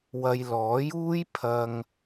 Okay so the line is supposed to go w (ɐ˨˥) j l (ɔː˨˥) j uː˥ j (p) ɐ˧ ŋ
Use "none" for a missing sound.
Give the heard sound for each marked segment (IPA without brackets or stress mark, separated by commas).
ɐ˨, ɔː˨˥, pʰ